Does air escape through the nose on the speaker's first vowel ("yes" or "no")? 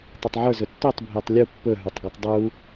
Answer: no